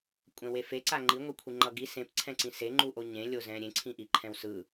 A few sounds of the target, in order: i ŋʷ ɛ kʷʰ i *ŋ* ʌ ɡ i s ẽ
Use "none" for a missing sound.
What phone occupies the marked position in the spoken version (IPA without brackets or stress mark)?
ŋ͡ǃ